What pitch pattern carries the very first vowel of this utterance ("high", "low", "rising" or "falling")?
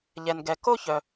low